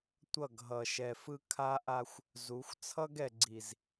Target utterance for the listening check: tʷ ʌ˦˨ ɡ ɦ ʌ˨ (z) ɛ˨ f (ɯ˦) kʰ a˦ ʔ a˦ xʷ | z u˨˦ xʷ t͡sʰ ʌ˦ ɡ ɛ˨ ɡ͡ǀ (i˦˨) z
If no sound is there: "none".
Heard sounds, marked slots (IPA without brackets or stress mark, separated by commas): ʃ, ɯ˦, i˨